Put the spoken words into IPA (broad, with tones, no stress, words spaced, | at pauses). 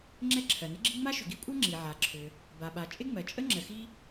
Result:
ŋ͡ǁɛ˥ǁʰɜ˩nɪ˥ɡ͡ǁi˥ ŋ͡ma˥ʃʏ˩ɡi˥kʷʼɜ˥ ŋ͡ǁi˩ʕa˩ǁʰʏ˩ | ba˩ɓa˩ t͡ʃʼɪ˥ŋ͡mɜ˩ t͡ʃʼə˥ ŋ͡ǁə˩xi˥